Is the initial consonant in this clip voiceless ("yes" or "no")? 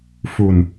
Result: yes